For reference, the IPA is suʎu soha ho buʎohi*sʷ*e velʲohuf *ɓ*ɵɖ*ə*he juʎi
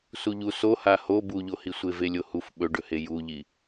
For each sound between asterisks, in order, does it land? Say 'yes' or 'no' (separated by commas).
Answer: yes, yes, no